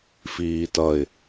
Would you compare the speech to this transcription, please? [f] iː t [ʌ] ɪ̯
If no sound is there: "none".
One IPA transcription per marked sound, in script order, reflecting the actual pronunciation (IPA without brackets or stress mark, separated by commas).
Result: f, ʌ